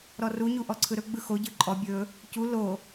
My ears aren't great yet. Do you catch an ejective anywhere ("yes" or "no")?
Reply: yes